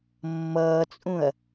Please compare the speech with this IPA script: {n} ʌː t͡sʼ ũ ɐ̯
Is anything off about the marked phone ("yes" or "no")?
yes